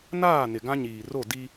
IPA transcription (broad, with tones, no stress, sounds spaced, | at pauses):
n aː˦˨ n ɪ˨ ɡ ã˦ ɲ iː˨ r o˦˨ d i˦